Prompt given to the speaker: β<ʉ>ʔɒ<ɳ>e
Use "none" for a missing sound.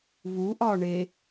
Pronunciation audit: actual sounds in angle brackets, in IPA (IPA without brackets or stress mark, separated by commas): u, ɳ